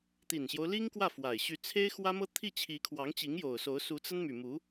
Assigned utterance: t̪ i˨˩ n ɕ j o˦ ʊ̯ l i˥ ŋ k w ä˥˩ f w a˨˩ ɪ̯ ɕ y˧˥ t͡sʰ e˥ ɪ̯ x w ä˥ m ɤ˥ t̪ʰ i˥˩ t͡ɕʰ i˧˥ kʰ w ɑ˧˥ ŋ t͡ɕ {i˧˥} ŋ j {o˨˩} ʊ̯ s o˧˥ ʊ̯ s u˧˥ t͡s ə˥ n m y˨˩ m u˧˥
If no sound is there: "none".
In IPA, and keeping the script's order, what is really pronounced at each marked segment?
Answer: i˧˥, o˨˩

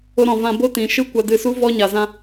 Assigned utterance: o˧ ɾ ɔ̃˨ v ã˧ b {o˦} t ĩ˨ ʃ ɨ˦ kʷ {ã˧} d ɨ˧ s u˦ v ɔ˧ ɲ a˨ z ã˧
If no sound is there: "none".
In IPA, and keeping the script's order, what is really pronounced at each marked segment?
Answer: o˦, a˧

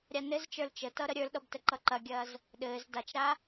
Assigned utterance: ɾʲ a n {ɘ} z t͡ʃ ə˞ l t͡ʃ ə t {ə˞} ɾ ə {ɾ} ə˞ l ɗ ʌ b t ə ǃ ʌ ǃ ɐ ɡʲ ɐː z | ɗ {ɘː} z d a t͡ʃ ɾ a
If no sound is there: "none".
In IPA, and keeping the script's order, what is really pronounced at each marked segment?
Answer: ɘ, ʌ, ɾʲ, ɘː

